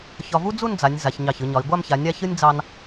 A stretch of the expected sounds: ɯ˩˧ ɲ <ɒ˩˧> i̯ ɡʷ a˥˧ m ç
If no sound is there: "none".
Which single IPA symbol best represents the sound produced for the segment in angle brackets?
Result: ɒ˩˧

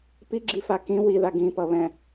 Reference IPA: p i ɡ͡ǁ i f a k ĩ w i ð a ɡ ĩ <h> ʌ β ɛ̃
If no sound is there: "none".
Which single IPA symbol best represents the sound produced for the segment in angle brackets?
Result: p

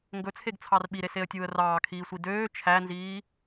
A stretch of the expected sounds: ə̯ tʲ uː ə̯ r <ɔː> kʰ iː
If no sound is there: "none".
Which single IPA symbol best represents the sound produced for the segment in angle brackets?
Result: ɑː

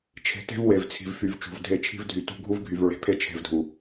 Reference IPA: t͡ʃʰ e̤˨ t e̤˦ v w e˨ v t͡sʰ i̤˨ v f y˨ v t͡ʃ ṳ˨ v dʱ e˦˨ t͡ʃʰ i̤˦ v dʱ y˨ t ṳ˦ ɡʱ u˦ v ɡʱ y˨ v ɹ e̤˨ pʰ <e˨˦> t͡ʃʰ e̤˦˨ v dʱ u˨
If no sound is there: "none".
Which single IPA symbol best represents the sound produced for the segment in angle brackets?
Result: e˦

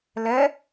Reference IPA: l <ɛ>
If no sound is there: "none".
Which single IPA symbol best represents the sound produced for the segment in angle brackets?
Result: ɛ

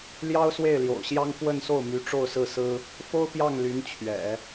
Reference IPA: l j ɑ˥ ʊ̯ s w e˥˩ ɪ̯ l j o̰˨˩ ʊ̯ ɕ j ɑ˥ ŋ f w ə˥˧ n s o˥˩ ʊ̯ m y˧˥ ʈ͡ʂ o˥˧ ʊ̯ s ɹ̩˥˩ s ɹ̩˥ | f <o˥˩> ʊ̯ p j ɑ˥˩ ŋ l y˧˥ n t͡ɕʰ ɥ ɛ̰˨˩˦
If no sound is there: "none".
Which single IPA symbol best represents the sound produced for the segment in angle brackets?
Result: o˥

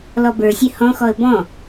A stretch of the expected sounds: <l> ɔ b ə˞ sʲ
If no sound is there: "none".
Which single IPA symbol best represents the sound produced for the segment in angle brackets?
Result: l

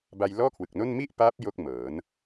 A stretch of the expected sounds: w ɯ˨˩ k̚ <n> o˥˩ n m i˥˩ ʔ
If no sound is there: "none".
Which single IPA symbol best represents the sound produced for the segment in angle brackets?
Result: n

